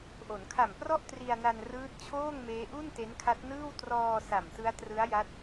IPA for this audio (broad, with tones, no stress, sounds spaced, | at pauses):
ʔ o˩˦ n kʰ a˨˩ m p r ɔ˥˩ ʔ t r i˧ a̯ n a˧ n r ɯː˦˥ t̚ t͡ɕʰ oː˥˩ ŋ m eː˦˥ ʔ u˥˩ n t e˦˥ n kʰ a˦˥ t̚ n ɯː˥˩ w t r ɔː˧ s a˨˩ m t ɯ˦˥ a̯ t r ɯ˦˥ a̯ j a˦˥ t̚